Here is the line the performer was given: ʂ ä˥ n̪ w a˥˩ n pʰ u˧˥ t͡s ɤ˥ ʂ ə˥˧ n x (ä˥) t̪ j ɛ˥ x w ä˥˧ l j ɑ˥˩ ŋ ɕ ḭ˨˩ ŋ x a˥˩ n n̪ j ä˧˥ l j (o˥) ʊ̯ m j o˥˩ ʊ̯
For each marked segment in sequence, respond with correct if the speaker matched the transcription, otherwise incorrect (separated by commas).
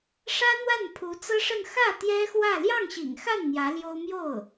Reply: incorrect, correct